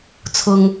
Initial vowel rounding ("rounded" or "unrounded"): rounded